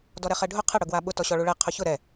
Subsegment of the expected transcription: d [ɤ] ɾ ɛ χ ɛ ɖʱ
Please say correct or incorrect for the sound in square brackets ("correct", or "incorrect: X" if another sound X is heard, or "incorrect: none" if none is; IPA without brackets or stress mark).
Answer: incorrect: ɔ